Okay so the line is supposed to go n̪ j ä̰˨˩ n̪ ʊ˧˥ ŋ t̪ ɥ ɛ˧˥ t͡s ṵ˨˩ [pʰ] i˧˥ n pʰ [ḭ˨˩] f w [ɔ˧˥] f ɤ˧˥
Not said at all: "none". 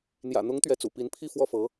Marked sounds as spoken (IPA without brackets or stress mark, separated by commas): p, i˥˧, ɔ˥˩